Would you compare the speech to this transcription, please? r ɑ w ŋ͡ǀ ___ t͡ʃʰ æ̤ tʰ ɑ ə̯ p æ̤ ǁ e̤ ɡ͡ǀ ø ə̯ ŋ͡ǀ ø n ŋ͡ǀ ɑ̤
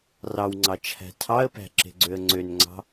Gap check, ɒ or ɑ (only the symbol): ɑ